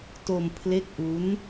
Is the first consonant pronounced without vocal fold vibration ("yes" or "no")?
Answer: yes